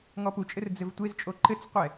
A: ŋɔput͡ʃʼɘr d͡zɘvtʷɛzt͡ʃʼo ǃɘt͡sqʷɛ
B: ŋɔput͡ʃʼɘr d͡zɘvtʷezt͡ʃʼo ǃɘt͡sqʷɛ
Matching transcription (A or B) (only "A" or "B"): B